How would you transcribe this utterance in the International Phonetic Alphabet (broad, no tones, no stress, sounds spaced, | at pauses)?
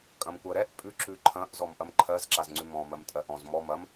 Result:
kʼ ɐ̃ m kʷ ɜ ɾ ɛ ʔ pʼ ʉ ǁ ʉ ǃʰ ɐ̃ ʔ z ɔ m ʔ ɐ m ǃʰ ɜ z ǁ a z ŋ͡ǀ ʉ m ɔ̃ m ɜ m tʼ ɜ ʔ ɔ̃ z m ɔ m ɐ m